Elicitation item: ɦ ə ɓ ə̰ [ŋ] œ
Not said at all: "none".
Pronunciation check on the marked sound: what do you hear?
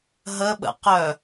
q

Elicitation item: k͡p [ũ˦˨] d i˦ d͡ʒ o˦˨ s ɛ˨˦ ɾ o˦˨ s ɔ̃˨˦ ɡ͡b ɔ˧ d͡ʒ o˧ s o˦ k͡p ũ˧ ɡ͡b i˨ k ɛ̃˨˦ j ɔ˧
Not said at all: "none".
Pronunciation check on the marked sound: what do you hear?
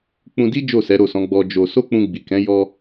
ũ˧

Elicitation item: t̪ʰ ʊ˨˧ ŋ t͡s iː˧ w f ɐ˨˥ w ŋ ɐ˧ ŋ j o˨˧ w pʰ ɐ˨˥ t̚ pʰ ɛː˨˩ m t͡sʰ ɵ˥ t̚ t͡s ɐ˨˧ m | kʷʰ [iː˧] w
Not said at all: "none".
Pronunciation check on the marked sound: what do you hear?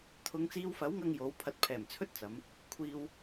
iː˧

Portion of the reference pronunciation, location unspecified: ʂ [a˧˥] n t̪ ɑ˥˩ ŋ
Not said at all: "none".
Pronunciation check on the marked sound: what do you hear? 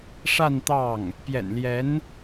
a˥˧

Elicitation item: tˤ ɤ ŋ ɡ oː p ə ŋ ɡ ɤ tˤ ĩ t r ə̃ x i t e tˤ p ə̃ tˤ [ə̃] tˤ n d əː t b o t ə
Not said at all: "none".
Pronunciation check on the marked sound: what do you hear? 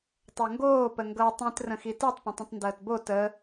ə̃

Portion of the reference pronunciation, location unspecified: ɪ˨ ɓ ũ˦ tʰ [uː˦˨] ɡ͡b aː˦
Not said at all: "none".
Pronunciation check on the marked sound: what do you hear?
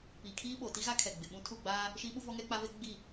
u˦˨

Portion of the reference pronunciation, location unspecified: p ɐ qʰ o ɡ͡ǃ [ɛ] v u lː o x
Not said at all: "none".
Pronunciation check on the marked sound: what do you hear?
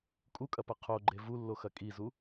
e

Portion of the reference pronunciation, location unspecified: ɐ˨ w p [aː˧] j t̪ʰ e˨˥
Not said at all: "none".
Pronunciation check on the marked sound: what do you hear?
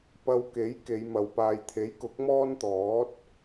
aː˧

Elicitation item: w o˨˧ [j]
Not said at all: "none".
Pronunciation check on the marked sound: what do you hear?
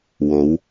w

